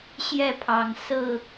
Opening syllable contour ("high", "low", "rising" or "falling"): falling